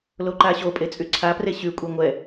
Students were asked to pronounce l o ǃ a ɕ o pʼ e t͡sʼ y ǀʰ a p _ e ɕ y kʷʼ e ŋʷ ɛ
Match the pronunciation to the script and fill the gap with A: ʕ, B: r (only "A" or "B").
B